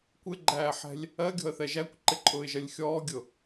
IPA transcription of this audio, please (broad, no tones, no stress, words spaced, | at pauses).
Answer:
kʷɪɡ͡ǃæːħɛ̤lʲ | ɜɡʲɔ̤ə̯θɛ ʒækʷǃɪǃʼʊːɪ̯ʒɜlʲ xʲɔːɡʲʊ